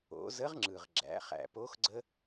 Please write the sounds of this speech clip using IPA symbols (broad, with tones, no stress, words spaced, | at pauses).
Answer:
o̰˩˧zə˧˥ʁ ŋ͡ǁɯ˩ʁ ɡ͡ǁæ̰˩˧χæ̰˩po˧˥x ɡ͡ǀə˥